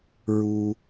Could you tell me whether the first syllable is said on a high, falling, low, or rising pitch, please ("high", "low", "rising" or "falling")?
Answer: low